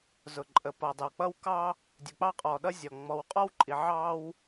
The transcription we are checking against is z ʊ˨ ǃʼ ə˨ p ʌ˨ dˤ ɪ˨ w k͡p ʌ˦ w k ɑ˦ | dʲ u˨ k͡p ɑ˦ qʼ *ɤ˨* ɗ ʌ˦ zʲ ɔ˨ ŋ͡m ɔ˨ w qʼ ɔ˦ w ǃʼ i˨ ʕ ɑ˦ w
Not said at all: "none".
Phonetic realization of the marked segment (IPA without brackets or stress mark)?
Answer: ɔ˨